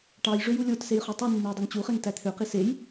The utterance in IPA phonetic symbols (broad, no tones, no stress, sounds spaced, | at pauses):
ʈ ɑ j ʐ ø j u lʲ o t s e j χ y tˤ y nː e j dˤ o ŋ t͡ɕ u χ e ŋ t æ t̪ʰ ø q i s e j